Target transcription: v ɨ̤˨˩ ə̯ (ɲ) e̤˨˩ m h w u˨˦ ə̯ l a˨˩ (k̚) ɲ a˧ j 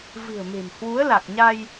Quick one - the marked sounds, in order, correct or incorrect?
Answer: incorrect: m, correct

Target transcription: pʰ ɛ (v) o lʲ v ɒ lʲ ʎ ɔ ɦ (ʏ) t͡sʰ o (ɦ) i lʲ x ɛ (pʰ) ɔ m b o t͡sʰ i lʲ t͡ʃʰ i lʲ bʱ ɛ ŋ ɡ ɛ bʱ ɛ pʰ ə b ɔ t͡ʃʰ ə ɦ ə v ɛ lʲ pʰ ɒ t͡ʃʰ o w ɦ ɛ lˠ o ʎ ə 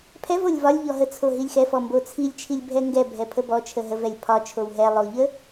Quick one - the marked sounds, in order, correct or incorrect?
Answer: correct, incorrect: ə, correct, incorrect: f

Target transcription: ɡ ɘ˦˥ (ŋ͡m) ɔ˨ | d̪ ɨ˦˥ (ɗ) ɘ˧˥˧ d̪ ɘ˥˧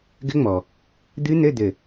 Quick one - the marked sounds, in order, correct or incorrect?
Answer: correct, incorrect: n̪

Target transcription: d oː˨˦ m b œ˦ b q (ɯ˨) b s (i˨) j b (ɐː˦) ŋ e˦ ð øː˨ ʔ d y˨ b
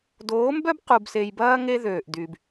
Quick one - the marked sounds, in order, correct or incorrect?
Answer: incorrect: u˨, incorrect: e˨, correct

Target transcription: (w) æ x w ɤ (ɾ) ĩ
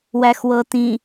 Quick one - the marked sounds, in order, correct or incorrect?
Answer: correct, incorrect: t

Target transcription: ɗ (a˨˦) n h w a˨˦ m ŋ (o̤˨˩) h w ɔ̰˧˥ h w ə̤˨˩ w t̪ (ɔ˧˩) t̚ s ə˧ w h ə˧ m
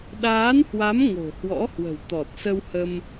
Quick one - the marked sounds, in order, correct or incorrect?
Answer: incorrect: aː˨˦, correct, incorrect: ɔ˨˩

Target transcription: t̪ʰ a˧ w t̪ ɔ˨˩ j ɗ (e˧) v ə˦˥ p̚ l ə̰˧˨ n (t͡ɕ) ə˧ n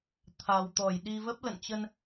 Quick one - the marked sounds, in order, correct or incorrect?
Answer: incorrect: i˧, correct

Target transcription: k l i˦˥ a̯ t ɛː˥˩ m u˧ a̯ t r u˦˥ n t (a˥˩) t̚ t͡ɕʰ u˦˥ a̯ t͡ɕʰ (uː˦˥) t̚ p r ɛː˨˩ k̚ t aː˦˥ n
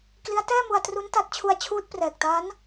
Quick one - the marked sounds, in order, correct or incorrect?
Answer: incorrect: a˦˥, correct

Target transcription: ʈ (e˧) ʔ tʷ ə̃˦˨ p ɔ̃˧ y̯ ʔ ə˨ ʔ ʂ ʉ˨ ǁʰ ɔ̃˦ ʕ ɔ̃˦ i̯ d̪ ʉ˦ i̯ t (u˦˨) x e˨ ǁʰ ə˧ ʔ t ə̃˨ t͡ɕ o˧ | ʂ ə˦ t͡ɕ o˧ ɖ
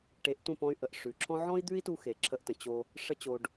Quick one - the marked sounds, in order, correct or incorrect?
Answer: incorrect: e˨˦, incorrect: u˧

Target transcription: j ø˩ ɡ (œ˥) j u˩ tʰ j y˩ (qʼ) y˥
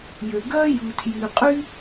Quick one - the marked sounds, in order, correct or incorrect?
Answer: correct, correct

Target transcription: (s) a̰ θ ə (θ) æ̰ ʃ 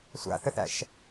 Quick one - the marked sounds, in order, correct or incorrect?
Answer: incorrect: sʷ, correct

